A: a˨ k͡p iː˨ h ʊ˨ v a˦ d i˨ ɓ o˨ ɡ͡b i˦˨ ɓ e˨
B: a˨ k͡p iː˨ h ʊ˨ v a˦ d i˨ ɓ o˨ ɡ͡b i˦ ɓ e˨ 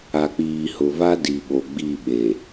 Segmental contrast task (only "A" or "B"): A